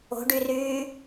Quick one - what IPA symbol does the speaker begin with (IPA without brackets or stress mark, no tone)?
o̤